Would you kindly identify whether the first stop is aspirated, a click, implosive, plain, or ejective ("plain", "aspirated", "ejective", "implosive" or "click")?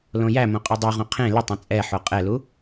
ejective